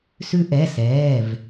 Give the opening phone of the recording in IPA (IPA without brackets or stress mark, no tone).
s